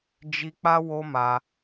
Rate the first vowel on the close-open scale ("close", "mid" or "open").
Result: close